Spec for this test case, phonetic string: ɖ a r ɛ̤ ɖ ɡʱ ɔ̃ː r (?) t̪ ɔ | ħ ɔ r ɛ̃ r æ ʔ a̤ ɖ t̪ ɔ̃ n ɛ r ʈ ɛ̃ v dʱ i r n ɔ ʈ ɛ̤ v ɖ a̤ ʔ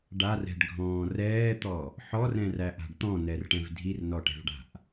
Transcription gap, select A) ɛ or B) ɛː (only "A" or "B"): B